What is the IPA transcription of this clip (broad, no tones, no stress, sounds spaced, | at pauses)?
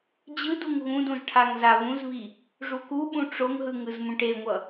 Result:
d͡ʑ ɯ d u ŋ ɣ ũ d ũ z ʈʰ a ŋ z a β ũ z β i | ʐ u k u ɓ ũ ʈ͡ʂ o ŋ ɦ ɯ ŋ ɯ z m ũ ʈ e ŋʷ ʌ